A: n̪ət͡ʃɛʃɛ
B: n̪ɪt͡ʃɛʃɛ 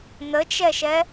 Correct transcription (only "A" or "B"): A